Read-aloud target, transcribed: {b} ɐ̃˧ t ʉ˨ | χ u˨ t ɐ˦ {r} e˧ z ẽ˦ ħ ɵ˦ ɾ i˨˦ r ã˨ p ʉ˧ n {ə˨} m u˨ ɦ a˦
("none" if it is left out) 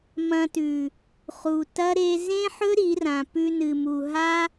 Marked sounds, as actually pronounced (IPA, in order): m, ɾ, ɨ˨

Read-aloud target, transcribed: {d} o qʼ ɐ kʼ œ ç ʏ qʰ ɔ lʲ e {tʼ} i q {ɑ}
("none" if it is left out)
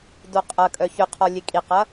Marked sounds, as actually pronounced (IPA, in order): d, kʼ, ɐ

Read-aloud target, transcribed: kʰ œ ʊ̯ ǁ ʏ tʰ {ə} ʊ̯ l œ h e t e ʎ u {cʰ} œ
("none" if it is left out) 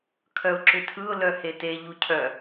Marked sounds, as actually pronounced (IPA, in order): ɯ, cʰ

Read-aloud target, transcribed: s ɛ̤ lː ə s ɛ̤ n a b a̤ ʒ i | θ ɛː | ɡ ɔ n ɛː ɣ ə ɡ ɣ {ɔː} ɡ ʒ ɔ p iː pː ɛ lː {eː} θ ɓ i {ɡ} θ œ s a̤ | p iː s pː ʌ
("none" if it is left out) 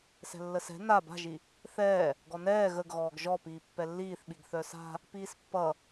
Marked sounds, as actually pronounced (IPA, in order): ɔː, iː, ɡ

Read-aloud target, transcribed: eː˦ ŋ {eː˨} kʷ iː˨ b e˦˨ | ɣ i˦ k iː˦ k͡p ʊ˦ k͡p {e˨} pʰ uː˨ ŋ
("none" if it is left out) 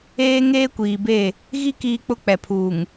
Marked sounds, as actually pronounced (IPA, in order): eː˦, ɛ˨

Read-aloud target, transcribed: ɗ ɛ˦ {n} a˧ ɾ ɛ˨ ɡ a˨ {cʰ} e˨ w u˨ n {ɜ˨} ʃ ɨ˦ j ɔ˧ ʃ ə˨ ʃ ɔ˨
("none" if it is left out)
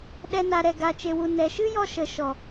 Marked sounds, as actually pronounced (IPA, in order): n, t͡ʃ, ɛ˨

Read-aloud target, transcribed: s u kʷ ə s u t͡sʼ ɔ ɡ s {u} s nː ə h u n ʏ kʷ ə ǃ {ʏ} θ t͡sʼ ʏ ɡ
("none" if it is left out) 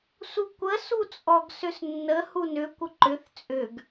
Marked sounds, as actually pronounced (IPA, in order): ʏ, ʏ

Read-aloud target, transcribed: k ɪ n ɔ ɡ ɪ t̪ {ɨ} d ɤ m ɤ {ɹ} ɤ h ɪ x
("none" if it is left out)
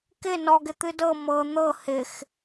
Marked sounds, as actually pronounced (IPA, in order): ɨ, n̪

